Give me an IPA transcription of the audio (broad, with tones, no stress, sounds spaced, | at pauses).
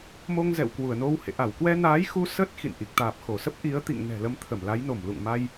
m o˧ ŋ z ɛ̰˧˨ w k w u˧˩ ə̯ n o˧ w h ḛ˧˨ ʔ a˧˩ w k w ɛ˧ n aː˨˦ j x u˧ s ə˦˥ t̚ x ḭ˧˨ n ʔ i˨˩ k̚ t̪ aː˨˩ p̚ x o˧˩ s ə˦˥ p̚ ʔ i˨˦ ə̯ t̪ ḭ˧˨ ŋ n ɛ̤˨˩ l ə˨˦ m t̪ʰ ə˧˩ m l a˨˦ j n o˧˩ m l ṵ˧˨ ŋ m a˧ j